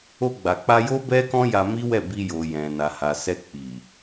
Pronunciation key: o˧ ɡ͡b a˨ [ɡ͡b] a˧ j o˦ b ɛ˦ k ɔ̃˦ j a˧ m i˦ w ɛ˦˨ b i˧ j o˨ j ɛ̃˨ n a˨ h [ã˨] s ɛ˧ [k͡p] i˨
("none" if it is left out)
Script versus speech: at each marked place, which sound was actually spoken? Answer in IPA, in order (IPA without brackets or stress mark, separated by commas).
k͡p, a˨, k͡p